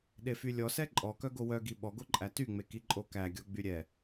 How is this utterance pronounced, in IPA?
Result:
ɗefylʲɔsɛ ǃʼɔkœɡo wœɡi ɓɔɡoǃʼæ tyŋ͡meki ǃʼokæɡʲɔ ɡ͡byɾʲɛ

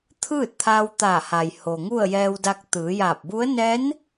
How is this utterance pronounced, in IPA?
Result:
t̪ʰɯː˥˨t̚t̪ʰaː˧wt̪aː˧˩ha˩j ho˩ŋu˥˨ə̯jɛː˧wda˧k̚ t̪ɯː˩˧jaː˧˩p̚bu˧˥ə̯ nɛː˧˥n

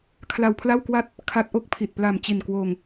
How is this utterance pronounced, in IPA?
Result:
kʰla˧wpʰla˥˩wkwa˥˩t̚ | kʰa˦˥t̚ʔo˦˥k̚pʰi˨˩t̚ pla˨˩mt͡ɕi˨˩nkwoː˧ŋ

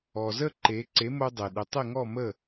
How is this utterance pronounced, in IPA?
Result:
ɔ˩zə˥˩ ǃe˩˥ ǀe˩˥mo˧ dˤe˩ɗɪ˩˥ tˤɪ˥˩ŋɔ˥˩ mə˥˩

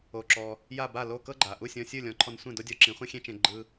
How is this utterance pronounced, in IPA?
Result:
o˩ǁɔ˩ | ja˥˩ba˥˩lo˥˩ kɤ˥ɡ͡ǃa˩ ʔu˥˩sʲɔ̃˧ sʲɯ˥˩lʲɔ̃˩˥ ǃʰɔ˧nsʷẽ˥˩ do˥dʲɔ˧ ǁĩ˩˥χʷẽ˥xʲẽ˥t͡ʃẽ˧ ɡ͡ǃɯ˧

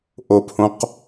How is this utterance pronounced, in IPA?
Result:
ʔophõq

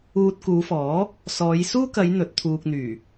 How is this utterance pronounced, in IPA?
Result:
uː˧t̚kuː˨˧fɔː˨˥ | sɔː˨˧j suː˥kɐ˨˧j n̪ɵ˨˥t̚t̪ʰuː˧k̚n̪yː˨˩

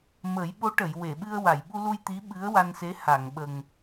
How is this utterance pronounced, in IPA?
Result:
mə˨˩˦jɓo˧˥ʈə˨˩˨j we˨˩˨ɓɨ˧ə̯ wa˨˩˨jɓu˧lu˧j t̪i˧˥ɓɨ˧˥ə̯wa˧nse˧˥ ha˨˩˨ŋɓə˨˩ŋ

